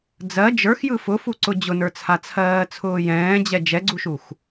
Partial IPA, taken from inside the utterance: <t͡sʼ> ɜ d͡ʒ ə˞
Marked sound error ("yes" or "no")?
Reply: yes